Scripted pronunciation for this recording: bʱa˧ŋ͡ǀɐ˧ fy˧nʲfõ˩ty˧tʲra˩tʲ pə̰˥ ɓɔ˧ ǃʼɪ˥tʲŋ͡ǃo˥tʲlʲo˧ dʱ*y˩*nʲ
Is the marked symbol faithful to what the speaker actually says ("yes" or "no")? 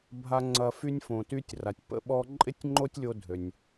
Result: no